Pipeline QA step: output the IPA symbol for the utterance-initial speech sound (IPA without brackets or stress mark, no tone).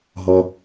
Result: ɦ